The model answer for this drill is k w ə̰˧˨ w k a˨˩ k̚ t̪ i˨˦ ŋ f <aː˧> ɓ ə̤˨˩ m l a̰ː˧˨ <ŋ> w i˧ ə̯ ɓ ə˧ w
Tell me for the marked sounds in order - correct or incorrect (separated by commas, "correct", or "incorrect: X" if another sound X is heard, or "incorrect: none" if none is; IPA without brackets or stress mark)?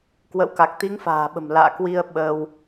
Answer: incorrect: a̤ː˨˩, incorrect: k